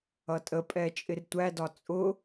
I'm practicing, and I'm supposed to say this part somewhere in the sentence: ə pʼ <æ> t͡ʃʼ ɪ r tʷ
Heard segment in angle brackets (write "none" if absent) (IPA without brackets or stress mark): ɛ